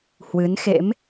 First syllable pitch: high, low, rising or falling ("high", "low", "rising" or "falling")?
rising